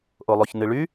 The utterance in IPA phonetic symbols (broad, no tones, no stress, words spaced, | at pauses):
ʔolˠoçnɨɭy